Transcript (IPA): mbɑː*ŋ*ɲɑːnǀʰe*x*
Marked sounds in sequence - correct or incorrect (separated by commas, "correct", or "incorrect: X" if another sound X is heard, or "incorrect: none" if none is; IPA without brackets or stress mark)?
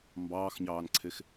incorrect: x, correct